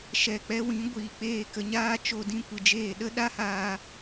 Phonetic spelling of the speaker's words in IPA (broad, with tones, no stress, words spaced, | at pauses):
ʃɛ˨k͡pɛ˧wĩ˨˦ ɡʷiː˨k͡peː˦˨kə˧ɲaː˦ t͡ʃo˧dĩ˧kʷɨ˨d͡ʒeː˦˨ ɗə˦ɗa˦haː˧